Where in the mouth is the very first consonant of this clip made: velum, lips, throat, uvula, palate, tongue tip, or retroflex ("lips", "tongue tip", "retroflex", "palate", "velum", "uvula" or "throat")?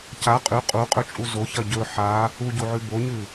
palate